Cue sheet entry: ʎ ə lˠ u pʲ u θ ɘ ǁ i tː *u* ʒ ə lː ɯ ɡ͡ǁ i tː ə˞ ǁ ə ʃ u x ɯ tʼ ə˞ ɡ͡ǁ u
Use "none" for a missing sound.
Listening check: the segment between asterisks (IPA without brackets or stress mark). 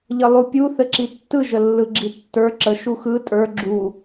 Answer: ɯ